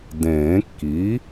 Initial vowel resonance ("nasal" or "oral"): nasal